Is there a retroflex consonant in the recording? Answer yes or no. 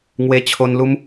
no